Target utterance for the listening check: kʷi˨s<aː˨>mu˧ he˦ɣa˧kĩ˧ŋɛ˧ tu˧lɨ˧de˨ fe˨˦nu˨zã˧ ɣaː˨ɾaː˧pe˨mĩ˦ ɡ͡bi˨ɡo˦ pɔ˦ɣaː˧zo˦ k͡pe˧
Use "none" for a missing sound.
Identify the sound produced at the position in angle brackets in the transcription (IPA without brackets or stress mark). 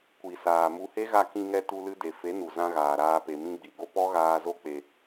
aː˨